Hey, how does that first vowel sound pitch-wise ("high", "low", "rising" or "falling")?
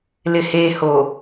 low